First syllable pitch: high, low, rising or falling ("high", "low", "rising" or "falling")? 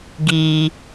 low